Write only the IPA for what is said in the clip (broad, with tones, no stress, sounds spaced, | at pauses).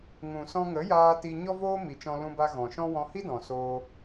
ŋ ũ˨ s ɔ̃˧ ŋ ə˨˦ j aː˧ t i˧ ɲ ɔ˦ v oː˦ m i˨ t͡ʃ ɔ̃˧ l ũ˧ b a˧ ɣ ɔ̃˨ ʃ ɔ̃˦ w ɔ̃˧ h i˦ d ɔ̃˨ s oː˧